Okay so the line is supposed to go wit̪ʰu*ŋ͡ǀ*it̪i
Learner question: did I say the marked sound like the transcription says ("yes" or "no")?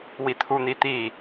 no